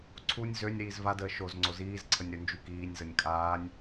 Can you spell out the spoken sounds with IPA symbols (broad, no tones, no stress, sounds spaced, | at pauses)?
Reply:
ǀʰ u nʲ z ø nʲ ɾ iː z v a d əː ʃ o z ŋ͡ǀ o z iː z ǀʰ ə nʲ ɾ ø n d͡ʒ y k iː nʲ z ə nʲ kʼ aː nʲ